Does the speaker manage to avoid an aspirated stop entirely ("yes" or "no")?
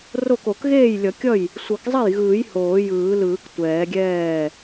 yes